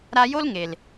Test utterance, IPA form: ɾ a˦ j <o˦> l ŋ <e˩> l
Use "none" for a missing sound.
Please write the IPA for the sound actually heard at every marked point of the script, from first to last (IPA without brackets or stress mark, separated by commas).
o˦, e˩